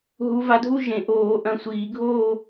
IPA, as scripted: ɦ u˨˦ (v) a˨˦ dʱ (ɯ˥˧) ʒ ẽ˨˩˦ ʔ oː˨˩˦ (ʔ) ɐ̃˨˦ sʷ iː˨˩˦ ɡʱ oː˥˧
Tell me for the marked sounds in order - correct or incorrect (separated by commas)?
correct, incorrect, correct